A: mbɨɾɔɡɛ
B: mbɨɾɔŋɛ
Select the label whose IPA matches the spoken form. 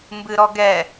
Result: A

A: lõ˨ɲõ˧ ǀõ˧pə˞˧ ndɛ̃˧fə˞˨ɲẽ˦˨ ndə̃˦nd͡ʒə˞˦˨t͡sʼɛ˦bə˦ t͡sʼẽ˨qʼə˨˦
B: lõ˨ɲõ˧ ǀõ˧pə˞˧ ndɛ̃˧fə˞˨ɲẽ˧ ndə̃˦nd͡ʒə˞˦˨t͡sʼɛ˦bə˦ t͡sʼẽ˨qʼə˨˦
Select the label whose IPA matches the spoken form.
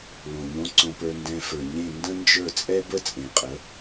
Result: A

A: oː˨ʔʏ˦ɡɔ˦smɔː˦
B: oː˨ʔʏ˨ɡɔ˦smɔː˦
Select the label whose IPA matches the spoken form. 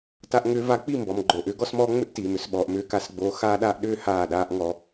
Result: A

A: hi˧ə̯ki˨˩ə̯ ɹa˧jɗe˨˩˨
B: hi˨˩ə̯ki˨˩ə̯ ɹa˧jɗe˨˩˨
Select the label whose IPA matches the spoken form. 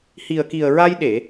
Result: B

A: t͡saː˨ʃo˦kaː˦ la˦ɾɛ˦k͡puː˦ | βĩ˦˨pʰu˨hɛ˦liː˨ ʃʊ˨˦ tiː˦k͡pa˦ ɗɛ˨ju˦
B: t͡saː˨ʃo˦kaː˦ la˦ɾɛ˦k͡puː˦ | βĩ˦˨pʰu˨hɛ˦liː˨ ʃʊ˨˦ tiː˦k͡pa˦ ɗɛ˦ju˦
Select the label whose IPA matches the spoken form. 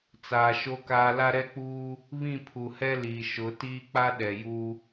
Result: A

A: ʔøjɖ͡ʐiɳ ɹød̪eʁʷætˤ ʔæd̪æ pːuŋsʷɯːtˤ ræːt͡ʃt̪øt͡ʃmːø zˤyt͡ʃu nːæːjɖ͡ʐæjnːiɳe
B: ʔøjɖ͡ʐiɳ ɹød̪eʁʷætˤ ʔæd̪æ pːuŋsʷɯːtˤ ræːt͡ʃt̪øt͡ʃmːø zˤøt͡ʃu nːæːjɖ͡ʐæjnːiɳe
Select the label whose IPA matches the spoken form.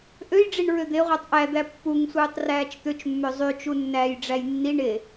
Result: A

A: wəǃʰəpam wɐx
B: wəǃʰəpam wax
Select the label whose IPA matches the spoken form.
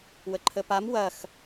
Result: A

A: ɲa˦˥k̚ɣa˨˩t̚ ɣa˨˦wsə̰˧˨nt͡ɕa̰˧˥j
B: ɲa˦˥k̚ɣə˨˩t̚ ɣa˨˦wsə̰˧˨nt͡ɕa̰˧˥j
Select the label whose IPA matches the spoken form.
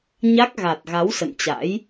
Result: A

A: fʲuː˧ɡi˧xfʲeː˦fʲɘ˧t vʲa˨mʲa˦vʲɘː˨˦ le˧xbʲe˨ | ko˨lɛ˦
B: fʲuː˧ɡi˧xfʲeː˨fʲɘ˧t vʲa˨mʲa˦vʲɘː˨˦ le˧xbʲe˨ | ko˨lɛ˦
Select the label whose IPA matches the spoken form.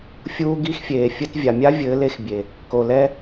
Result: B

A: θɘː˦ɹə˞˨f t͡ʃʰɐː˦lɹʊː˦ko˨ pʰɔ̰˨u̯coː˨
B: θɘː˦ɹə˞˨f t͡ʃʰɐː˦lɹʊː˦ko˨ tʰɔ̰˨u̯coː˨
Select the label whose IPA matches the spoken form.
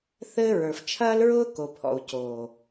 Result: A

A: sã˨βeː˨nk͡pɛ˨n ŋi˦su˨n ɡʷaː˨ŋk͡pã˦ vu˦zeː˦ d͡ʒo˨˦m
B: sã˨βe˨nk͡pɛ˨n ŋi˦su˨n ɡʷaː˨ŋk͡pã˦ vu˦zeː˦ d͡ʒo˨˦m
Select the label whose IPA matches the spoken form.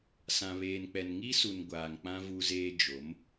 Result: A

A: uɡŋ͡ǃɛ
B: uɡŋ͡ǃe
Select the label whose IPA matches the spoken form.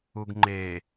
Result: B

